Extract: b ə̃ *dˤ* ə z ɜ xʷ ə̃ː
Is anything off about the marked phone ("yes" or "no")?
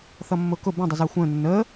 no